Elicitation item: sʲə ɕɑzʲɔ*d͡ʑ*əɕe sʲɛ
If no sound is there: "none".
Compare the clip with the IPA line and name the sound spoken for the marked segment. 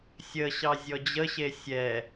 d͡ʑ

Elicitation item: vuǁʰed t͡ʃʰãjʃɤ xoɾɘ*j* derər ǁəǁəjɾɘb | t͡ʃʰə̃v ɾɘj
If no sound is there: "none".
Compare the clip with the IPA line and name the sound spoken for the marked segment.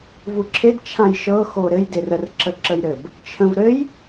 j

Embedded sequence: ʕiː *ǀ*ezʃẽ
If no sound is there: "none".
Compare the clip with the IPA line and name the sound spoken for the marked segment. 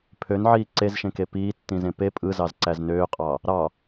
ǀ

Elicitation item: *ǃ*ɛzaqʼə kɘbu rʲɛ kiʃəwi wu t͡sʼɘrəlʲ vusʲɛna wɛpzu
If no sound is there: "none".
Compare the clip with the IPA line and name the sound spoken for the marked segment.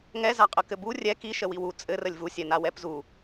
ŋ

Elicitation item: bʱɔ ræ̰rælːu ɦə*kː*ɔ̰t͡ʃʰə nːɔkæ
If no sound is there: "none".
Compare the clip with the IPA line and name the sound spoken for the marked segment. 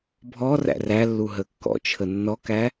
kː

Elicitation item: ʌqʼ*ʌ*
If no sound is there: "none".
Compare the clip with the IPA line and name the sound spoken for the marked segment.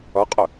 ə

